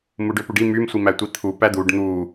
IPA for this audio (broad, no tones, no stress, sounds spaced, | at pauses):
m u ɖ ø p u ɖ i m y m sʷ i m æ tʷ i t̪ʰ u p æ d̪ u ɖ n̪ u